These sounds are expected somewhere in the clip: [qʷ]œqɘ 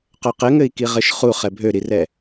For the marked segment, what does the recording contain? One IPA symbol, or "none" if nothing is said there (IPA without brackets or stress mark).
q